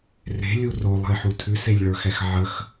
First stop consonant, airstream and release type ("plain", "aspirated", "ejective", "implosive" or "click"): aspirated